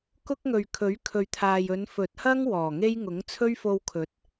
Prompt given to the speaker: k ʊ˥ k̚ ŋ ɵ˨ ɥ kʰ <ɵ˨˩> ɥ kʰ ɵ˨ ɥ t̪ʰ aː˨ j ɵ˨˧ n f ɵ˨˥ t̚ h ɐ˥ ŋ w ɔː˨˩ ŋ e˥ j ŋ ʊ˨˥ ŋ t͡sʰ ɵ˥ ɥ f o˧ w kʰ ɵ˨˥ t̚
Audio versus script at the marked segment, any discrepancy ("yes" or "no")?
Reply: yes